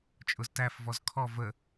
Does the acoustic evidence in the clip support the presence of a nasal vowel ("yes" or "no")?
no